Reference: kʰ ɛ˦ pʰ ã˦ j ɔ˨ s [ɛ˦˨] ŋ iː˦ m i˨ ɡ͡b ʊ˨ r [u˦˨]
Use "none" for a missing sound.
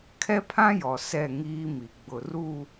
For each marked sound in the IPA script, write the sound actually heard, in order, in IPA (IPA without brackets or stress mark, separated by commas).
ɛ˦˨, u˦˨